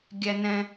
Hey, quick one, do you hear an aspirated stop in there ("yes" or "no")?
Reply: no